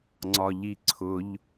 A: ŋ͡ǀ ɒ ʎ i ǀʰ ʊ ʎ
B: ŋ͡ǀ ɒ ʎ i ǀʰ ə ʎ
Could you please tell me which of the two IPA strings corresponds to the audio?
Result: A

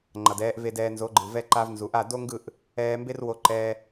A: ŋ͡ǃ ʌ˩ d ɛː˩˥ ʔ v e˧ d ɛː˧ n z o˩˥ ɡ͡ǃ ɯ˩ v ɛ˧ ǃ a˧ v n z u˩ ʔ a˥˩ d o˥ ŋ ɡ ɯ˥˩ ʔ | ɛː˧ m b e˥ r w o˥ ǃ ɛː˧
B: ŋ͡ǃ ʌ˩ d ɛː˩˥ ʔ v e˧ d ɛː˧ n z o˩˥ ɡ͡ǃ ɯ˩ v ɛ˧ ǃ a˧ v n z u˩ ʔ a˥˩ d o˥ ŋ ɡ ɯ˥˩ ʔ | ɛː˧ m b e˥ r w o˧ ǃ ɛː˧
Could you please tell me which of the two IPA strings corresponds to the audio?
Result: B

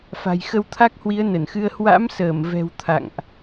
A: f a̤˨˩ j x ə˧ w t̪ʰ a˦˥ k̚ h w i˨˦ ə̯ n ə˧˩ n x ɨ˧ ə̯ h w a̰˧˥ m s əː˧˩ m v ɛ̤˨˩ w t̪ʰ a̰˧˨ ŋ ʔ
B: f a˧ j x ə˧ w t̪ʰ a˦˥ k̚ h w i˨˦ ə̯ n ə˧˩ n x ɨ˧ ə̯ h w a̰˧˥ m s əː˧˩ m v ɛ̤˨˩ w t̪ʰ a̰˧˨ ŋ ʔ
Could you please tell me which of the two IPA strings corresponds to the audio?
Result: A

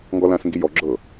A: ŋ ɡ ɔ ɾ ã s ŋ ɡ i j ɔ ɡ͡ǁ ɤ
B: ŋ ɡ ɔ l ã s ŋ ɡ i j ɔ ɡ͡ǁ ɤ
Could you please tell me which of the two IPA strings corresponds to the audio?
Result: B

